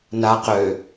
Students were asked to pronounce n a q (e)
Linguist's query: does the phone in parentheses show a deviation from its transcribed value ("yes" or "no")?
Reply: yes